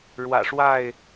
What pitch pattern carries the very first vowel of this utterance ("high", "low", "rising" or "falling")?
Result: low